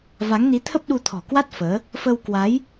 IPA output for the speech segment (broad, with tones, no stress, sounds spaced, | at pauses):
v a˨˦ ŋ n i˨˦ t̪ʰ ə˦˥ p̚ ɗ u˧ t̪ʰ ɔ̤˨˩ k w a˦˥ t̚ f əː˨˦ | f ə˧ w k w a˨˦ j